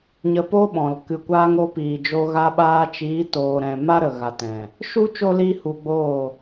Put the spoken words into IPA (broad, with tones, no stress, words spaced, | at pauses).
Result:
ɲə˧po˦ɓɔ̃˨l kɨ˨kʷaː˧ŋ o˧piː˨d͡ʒo˧ ɣa˧ɓaː˧t͡ʃiː˨˦ toː˨ɾɛ̃˨ ma˦ɾə˨ ɣa˨tɛ̃˨ | ʃu˦ t͡ʃo˦liː˦ hu˧ɡ͡boː˦˨